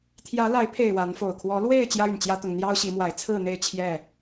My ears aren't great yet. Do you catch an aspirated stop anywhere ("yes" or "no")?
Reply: yes